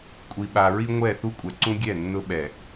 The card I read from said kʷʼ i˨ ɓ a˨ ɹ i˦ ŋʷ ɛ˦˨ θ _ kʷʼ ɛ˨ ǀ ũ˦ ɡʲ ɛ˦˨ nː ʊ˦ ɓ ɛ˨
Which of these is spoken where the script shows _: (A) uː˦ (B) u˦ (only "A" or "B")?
B